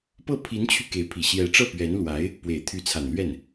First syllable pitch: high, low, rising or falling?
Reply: falling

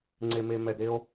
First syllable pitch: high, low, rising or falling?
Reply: low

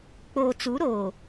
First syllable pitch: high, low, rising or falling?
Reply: low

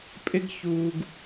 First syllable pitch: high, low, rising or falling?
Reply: high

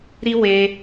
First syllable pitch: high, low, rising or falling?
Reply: high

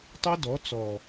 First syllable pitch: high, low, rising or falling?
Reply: high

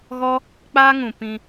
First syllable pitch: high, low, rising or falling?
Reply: high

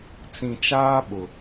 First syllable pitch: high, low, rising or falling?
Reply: low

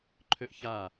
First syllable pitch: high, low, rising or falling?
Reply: high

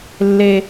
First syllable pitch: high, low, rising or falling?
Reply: high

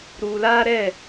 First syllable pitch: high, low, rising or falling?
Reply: low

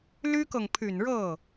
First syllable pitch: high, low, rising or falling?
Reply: high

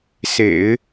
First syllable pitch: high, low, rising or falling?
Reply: low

